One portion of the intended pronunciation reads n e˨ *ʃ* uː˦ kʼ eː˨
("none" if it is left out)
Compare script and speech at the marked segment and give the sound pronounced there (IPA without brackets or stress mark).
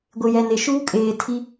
ʃ